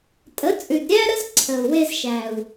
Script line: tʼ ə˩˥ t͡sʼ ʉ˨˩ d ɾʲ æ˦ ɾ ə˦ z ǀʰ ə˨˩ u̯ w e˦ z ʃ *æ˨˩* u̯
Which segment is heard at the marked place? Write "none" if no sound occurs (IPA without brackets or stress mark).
æ˨˩